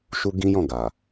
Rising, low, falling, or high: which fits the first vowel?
high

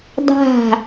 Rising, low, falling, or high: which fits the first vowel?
falling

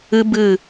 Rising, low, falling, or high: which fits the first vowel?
high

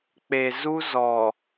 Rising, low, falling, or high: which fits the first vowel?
low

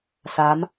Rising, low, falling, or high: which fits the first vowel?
rising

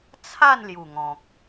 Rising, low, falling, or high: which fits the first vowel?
falling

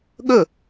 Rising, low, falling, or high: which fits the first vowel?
falling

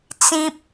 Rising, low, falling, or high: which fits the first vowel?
high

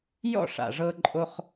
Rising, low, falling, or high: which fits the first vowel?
falling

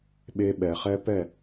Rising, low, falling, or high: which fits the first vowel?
high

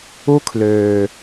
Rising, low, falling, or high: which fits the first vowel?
high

